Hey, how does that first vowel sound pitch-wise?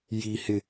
high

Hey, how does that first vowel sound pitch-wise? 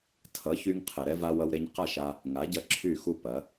rising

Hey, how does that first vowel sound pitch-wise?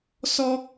high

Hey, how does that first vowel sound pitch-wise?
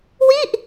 falling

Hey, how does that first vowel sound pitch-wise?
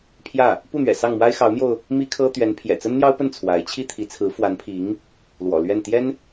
falling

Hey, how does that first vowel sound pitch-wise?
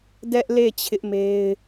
high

